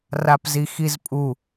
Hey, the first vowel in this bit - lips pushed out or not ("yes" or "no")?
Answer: no